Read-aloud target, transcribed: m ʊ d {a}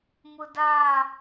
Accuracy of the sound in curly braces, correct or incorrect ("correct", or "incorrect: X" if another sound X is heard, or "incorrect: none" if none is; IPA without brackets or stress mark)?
correct